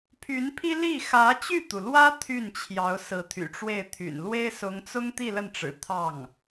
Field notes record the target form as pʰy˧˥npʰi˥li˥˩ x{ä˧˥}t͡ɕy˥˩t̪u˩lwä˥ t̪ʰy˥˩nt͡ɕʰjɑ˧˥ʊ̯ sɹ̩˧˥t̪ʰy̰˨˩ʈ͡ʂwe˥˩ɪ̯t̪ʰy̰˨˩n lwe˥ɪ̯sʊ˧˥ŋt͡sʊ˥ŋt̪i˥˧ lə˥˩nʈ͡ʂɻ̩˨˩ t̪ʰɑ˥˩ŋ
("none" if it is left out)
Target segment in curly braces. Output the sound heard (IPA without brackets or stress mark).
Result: ä˧˥